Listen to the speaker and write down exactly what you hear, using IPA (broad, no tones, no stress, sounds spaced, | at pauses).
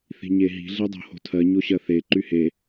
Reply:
θ i̤ ɲ e ɦ i̤ ɮ e dˤ o̤ h o̤ tʰ ɜ ɲ o ɕ ɜ θ e ǃ y h e